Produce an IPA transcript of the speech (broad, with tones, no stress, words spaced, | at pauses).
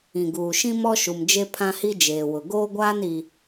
ĩ˨ɡuː˨ʃĩ˦ mɔ˦ʃu˨md͡ʒe˦ pʰã˦hi˦d͡ʒeː˨ wʊ˨ɡoː˦ɡʷaː˦n i˦